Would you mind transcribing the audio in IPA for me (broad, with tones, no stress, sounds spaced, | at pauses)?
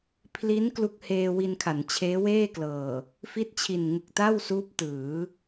pʰ l i˦˥ n k l u˦˥ k̚ h eː˧ w i˧ n kʰ a˩˦ n t͡ɕʰ eː˦˥ w eː˥˩ k l ɤː˨˩ | f i˦˥ t̚ t͡ɕʰ i˨˩ n ŋ ɯ˨˩ k̚ t a˥˩ w s uː˦˥ p̚ t ɯː˩˦